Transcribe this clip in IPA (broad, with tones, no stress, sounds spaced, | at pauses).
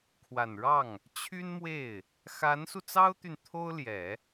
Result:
kʰ w a˨˩ n ɻ ɑ˥˩ ŋ | t͡ɕʰ y˥ n m w e˥˩ ɪ̯ | x a˧˥ n s u˧ t͡s ɑ˥ ʊ̯ t̪ y˨ n t̪ʰ o˥ ʊ̯ l j ɛ˨˩˦